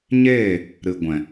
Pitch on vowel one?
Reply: falling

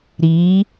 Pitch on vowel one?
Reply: rising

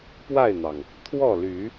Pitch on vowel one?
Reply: falling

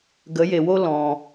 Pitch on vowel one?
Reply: rising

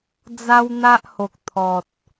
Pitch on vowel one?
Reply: high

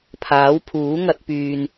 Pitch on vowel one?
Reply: rising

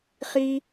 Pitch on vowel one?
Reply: high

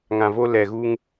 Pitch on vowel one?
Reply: low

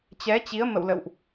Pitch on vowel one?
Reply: rising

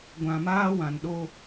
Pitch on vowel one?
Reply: low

